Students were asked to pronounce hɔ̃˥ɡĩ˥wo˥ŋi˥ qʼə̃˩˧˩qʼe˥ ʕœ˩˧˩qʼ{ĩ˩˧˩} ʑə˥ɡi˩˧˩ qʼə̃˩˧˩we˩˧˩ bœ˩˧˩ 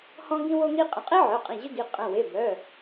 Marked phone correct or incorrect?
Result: correct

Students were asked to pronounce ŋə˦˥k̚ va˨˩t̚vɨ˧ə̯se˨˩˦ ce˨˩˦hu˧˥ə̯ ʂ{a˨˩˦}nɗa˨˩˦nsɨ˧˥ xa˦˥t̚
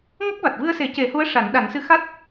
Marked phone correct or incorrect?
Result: correct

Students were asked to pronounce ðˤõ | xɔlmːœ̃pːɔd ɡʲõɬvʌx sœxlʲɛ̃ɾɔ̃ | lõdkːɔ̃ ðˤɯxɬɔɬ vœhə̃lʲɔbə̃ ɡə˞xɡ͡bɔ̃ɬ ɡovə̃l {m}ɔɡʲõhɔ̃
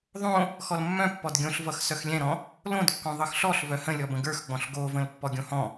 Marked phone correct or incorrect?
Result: incorrect: pː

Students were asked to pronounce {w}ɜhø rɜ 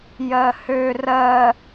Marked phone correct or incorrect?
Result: incorrect: j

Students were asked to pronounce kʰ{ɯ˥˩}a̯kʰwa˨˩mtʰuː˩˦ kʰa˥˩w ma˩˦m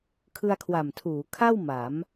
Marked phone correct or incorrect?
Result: incorrect: ɯ˧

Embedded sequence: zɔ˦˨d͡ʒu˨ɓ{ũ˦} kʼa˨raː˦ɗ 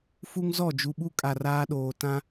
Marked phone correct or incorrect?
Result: incorrect: u˦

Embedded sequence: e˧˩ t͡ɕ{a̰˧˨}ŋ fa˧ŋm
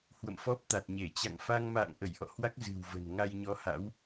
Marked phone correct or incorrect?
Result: correct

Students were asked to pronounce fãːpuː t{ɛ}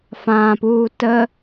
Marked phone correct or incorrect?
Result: incorrect: ə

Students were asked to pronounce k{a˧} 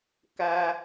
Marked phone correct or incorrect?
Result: correct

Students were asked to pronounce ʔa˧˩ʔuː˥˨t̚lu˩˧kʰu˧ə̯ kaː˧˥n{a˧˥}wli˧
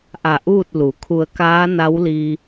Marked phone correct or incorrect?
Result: correct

